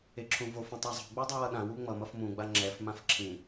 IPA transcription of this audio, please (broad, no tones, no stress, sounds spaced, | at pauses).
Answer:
e ǁʰ ũ v o f ũ tˤ a zˤ o̤ ɡ͡b u dˤ ɯ w ʌ ɗ ã w u ŋ͡m ʌ m ʌ f m ũ ɡ͡b a ŋ͡ǁ ɛ f m ã f ǁʰ ĩ